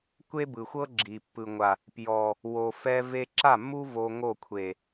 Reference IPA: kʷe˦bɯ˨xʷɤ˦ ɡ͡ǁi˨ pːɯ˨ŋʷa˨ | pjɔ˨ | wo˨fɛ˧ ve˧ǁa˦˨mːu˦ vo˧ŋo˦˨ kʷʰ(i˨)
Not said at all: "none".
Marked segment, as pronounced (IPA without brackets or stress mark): e˨